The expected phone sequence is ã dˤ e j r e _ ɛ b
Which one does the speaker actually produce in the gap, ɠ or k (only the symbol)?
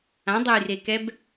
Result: k